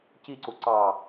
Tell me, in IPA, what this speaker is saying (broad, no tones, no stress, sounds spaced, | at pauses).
c i ǀ u ǀ ɑ